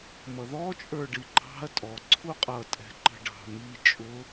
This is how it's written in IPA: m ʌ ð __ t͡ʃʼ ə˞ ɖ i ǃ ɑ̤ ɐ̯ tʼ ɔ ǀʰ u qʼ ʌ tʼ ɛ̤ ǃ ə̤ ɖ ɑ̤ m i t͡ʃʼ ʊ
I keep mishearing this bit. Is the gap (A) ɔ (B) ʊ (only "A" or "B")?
A